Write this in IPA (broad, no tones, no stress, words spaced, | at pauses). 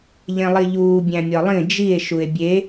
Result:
ʎẽlˠiʎuː bʲæ̃mʲɒlˠĩ d͡ʒie̯ ʃue̯bʲe